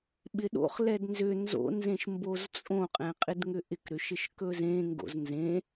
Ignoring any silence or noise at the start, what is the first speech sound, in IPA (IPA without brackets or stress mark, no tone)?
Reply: ɓ